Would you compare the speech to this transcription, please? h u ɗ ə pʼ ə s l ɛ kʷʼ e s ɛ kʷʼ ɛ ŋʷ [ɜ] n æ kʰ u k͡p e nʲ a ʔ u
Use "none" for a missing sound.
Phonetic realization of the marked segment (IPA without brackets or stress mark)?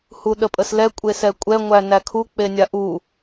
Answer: æ